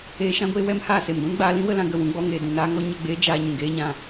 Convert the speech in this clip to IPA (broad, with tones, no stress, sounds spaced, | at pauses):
eː˧ ʃ ã˦ ɡʷ eː˦ w ɛ˦ m h aː˦˨ s e˨ m ɡʷ ũ˦ n ɡ͡b aː˧ l ĩ˦ w ə˧ l ã˧ ɡ ə˨ w ũ˧ ɡ͡b ɔ˧ ŋ eː˨ d ũ˨ n aː˦ ŋ ɔ˦ ɲ ə˦˨ ɡ͡b eː˦ d͡ʒ aː˧ ɲ ũ˨ ɡ eː˦ ɲ ã˧